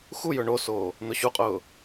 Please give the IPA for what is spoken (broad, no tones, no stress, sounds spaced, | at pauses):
x u j ɵ ɳ o s oː | n̪ ʊ ɕ u qʼ ʊː